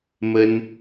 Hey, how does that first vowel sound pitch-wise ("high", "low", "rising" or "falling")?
high